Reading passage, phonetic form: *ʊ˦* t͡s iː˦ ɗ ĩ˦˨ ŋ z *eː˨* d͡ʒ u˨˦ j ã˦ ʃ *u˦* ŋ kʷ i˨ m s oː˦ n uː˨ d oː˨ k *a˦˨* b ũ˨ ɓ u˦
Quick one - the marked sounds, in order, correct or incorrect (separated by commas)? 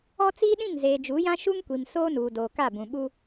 incorrect, correct, correct, correct